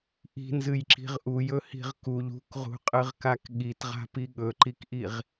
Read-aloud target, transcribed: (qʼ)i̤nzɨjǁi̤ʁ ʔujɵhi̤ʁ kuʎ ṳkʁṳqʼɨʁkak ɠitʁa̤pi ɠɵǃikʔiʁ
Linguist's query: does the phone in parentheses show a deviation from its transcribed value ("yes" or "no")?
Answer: yes